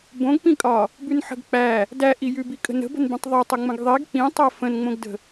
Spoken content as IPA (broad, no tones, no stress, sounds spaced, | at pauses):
b õ ɡ p ĩ kʼ ɒ | b ʉ n ħ ə̤ ɡ k͡p æ | d æ ʔ i j ʉ b i kʼ ə̤ n ə̤ b ə̤ n b ĩ tˤ ðˤ o tˤ ɵ ŋ͡m ə̃ ɡ ðˤ i ɡ k͡p ĩ tˤ æ f ə̃ n ŋ͡m õ ɡ d ə̤